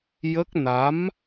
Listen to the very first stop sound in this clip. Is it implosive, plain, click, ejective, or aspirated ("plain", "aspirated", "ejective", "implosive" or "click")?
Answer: plain